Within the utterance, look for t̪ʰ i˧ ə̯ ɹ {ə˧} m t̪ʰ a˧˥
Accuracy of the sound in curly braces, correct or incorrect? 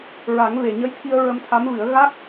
correct